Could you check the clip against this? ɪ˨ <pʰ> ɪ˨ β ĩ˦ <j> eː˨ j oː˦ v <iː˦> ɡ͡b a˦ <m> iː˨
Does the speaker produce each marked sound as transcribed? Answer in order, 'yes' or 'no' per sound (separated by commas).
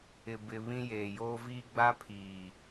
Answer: no, yes, yes, no